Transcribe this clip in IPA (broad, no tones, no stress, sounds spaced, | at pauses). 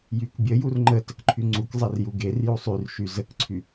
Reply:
j y k bʲ ə j u r ŋ͡ǃ ə t ə k ǃʰ y ŋ͡ǀ u k zˤ e r j u ɡ e r j u sˤ y r ʃ y z ə k ǀʰ y